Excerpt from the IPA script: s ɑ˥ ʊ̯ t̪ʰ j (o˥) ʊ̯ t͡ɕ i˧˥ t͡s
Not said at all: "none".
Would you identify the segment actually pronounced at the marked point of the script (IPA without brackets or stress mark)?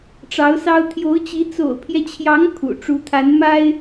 o˧˥